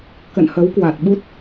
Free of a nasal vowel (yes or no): yes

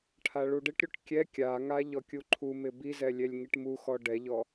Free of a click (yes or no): no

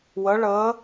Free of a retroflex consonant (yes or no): no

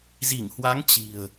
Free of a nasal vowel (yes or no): yes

